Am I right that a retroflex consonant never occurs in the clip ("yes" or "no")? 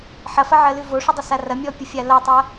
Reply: no